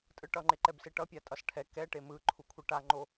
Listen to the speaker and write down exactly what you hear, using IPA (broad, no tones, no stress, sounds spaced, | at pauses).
tʼ ɯ ʈ ʌ ŋ͡ǃ e ǃ ɛ b s e ʈ ʌ pʲ a tʼ ʌ s ʈʰ ɛ k ɛ ʈ e m ɯ ǃʰ u kʷʰ ɯ ʈ a ŋ͡ǃ o